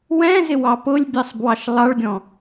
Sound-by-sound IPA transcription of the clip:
w ɛ̃ z ɪ w ɑ p ʊ lʲ bʲ ɜ sˤ b w ɑ ʃ lˠ ɑ ɭ ɡʲ ɔ̃

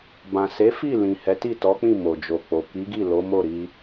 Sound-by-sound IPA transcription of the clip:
b ã˨ s e˨˦ f i˦˨ l ĩ˨ h ɛ˨˦ t i˦˨ t ɔ˨˦ k͡p ĩ˦˨ m o˨ d͡ʒ o˨ k͡p o˨ k i˨˦ ɡ i˦˨ l o˨˦ m o˦˨ ɾ i˧

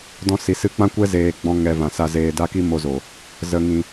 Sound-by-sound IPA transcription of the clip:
d ɔ̃˧ s i˨ s ɨ˧ k͡p ã˦ kʷ ɛ˦ z eː˧ ɡ͡b ɔ̃˦ ŋ ɛ˧ v ã˨ s a˧ z eː˧ d a˦ k i˦ m o˧ z o˨ | z ə˨ ŋ ĩ˨

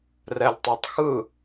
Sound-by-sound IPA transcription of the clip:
r ɛ lʲ tˤ a tˤ x ɯ

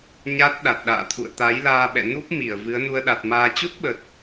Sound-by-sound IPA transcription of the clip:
ɲ a˦˥ t̚ ɗ a˨˩ t̚ ɗ a̰ː˧˨ t̪ʰ ṵ˧˨ ə̯ t̪ a˨˦ j l aː˧ ɓ ɛ̰˧˨ n u˦˥ p̚ m i˧˩ ə̯ v ɨ˨˦ ə̯ n u˧ ə̯ ɗ a˨˩ t̚ m aː˧ t͡ɕ u˦˥ t̚ ɓ ə˨˩ t̚

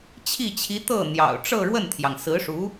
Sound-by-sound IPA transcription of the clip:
t͡ɕʰ i˥˩ t͡ɕʰ i˧˥ t̪ ɤ˥˩ n̪ j ɑ̰˨˩ ʊ̯ ʈ͡ʂ ɤ˥˧ ɻ w ə˥˩ n t̪ʰ j ɑ˩ ŋ s ɹ̩˧˥ ʂ u˧˥

